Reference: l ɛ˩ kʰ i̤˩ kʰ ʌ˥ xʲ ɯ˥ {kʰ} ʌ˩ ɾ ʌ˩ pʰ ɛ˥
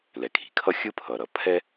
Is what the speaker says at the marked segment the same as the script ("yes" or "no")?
no